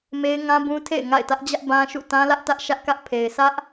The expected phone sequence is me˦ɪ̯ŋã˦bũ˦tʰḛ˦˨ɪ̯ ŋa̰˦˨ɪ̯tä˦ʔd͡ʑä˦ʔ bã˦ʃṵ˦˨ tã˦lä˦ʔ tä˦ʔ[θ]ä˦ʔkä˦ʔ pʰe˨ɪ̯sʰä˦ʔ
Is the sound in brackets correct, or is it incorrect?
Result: incorrect: ʃ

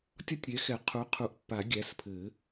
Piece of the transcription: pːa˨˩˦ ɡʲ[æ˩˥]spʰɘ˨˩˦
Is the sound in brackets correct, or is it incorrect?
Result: correct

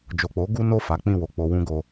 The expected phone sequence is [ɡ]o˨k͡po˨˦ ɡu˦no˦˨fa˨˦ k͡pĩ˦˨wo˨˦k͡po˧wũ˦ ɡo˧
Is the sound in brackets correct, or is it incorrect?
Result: incorrect: d͡ʒ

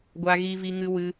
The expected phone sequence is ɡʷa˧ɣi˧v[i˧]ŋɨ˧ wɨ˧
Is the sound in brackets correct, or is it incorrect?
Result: correct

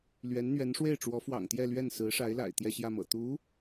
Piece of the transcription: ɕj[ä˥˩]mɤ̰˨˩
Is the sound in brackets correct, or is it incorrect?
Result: correct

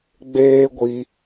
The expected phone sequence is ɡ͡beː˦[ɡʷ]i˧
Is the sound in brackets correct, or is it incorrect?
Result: correct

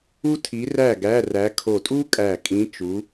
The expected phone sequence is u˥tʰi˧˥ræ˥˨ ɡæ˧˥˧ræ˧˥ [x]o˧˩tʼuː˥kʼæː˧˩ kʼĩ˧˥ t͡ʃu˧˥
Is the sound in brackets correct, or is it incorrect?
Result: incorrect: kʰ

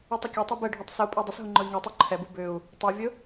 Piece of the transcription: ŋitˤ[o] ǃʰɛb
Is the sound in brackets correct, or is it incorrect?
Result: incorrect: u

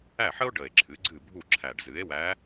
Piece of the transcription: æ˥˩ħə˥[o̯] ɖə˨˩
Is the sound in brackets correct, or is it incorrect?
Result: correct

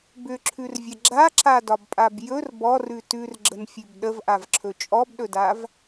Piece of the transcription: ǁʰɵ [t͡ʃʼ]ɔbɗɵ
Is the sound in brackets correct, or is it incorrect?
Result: correct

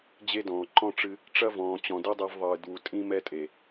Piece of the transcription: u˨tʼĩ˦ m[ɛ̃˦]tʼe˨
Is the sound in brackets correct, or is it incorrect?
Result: incorrect: ɛ˦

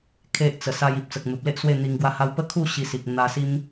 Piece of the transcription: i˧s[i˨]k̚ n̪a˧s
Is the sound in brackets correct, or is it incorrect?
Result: correct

